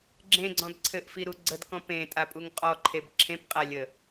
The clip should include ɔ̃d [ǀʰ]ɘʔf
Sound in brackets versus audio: correct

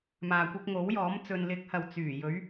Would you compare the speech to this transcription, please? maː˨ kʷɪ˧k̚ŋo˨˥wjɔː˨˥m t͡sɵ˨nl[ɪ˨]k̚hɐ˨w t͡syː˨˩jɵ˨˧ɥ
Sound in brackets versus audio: incorrect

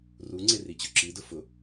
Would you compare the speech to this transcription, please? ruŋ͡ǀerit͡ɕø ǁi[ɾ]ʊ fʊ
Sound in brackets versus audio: incorrect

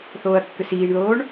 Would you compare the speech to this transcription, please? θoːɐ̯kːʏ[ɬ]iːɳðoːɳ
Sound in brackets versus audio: incorrect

